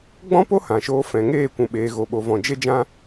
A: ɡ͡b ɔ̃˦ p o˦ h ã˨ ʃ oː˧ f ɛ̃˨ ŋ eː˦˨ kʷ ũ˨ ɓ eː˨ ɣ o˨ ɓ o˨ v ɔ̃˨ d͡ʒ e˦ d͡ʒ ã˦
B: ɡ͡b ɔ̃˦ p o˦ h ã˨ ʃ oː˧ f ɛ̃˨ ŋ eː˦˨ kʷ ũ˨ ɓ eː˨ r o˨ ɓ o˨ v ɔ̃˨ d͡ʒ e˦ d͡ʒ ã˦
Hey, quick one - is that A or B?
A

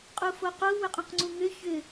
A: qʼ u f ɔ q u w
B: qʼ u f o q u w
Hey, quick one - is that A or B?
B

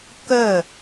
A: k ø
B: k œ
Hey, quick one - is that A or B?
B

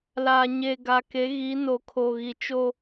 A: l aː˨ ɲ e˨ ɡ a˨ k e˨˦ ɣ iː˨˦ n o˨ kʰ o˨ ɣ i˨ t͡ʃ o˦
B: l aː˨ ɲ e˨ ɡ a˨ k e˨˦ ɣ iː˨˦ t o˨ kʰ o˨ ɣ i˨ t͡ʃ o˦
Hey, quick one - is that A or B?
A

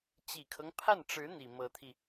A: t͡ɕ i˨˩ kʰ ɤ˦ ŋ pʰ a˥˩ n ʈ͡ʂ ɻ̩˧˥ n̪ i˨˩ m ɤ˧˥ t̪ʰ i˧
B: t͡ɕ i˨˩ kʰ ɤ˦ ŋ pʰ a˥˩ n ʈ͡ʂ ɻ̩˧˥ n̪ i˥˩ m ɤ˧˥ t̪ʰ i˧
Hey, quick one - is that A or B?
A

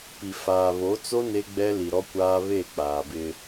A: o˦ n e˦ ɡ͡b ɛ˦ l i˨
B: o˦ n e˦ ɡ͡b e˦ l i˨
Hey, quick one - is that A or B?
A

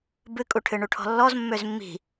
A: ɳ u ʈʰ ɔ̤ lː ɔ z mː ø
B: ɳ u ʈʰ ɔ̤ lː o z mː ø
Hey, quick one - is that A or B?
A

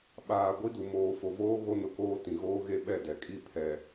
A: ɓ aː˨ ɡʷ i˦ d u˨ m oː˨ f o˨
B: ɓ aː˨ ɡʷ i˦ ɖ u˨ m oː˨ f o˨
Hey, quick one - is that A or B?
A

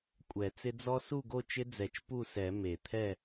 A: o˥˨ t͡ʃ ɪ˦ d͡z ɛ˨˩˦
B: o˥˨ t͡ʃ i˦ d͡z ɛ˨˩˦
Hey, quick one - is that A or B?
A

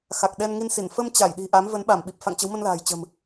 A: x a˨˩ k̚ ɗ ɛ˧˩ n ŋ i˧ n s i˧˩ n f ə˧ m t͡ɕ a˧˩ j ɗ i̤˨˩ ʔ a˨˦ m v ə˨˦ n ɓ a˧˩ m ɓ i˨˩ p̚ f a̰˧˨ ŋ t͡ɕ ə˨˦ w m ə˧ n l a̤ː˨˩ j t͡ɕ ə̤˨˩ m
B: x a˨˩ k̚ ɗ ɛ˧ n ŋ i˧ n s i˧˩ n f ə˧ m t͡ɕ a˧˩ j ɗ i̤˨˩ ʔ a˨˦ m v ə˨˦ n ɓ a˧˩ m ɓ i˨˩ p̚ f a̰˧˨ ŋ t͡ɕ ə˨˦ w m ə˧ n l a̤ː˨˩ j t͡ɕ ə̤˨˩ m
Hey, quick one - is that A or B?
B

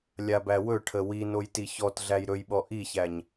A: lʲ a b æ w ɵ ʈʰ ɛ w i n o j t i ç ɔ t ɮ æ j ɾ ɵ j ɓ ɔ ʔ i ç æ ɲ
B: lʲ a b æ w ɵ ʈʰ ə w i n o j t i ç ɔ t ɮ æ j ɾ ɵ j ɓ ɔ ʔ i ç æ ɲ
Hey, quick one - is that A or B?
B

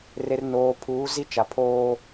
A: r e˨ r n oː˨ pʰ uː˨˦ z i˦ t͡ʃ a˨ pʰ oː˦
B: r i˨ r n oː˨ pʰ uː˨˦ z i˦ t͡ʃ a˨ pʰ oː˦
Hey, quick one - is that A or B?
A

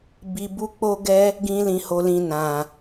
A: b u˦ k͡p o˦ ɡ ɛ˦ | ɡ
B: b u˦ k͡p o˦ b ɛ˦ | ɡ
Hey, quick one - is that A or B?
A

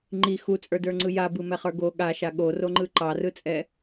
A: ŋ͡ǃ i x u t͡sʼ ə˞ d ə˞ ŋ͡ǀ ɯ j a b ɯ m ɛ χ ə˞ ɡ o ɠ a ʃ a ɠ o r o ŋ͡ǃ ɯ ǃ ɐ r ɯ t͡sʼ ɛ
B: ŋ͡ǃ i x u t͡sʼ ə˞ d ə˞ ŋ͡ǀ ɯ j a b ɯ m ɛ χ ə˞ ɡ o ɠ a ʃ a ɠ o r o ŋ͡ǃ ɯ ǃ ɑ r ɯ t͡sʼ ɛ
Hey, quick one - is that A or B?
B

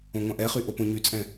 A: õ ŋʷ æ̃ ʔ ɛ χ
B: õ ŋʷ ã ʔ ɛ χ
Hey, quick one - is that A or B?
B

